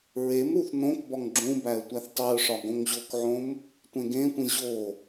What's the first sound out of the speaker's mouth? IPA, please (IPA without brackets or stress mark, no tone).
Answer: ɹ